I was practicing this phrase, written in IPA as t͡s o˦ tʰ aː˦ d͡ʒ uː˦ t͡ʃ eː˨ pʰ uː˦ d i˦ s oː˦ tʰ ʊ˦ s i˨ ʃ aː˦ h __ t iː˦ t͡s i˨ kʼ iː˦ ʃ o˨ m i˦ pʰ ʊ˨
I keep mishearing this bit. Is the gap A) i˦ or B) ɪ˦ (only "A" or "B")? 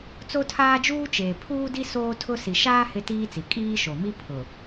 B